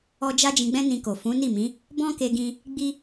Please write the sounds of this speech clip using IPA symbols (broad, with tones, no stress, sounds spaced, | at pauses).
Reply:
ɔ˧ d͡ʒ a˦ d͡ʒ ĩ˧ ɡ͡b ɛ̃˦ n ĩ˧ k o˨ f ũ˨˦ n i˦˨ m ĩ˨˦ | b ɔ̃˦ k e˧ ɡ ĩ˧ | ɡ͡b i˦